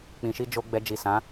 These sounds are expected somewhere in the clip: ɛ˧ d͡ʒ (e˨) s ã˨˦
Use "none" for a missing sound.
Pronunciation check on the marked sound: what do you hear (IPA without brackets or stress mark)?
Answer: i˨